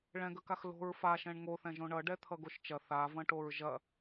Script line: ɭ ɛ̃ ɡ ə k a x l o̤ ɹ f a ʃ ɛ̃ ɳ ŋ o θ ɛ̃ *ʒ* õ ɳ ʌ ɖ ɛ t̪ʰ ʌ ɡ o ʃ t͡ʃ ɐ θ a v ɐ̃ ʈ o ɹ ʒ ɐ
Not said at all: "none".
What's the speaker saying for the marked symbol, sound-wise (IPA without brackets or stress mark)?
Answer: ʒ